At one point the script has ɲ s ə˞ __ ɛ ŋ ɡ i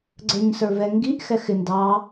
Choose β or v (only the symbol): v